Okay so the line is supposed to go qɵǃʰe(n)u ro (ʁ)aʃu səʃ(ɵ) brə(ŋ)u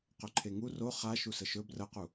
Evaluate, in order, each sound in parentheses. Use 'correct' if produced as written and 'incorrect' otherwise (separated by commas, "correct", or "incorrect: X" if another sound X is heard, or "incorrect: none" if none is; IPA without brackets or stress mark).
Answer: incorrect: ŋ, incorrect: χ, correct, incorrect: q